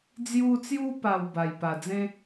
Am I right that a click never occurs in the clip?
yes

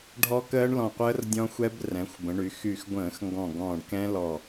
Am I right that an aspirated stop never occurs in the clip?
yes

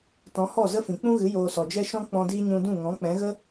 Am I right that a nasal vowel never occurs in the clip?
no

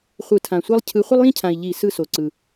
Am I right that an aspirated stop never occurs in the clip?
no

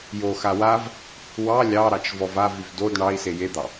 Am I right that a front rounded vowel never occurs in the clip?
no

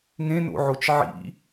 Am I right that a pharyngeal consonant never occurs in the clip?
no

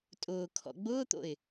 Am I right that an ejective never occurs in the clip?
no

